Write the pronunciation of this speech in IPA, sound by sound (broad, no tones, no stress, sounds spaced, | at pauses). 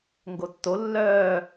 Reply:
ŋ ɡ o tː o lː œː